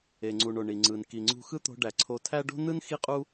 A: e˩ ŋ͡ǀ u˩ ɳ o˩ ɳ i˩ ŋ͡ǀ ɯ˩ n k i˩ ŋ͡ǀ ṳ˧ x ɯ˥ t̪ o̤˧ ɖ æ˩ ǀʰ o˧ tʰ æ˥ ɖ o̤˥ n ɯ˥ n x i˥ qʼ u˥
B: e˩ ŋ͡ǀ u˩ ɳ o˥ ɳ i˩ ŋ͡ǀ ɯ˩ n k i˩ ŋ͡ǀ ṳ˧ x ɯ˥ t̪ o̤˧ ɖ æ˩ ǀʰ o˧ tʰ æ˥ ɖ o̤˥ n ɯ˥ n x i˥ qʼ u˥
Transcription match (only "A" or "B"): A